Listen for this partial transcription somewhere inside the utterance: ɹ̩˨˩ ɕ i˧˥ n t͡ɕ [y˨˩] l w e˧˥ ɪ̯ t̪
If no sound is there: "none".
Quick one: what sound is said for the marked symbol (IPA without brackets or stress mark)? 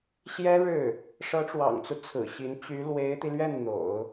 y˧˥